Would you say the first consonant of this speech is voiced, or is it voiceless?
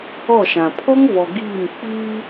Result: voiceless